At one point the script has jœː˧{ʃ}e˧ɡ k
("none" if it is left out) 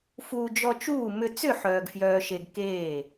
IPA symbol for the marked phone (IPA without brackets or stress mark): ʃ